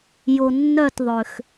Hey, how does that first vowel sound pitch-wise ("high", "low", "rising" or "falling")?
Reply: low